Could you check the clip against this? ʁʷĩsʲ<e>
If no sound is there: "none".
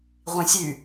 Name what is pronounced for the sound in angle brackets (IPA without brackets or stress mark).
y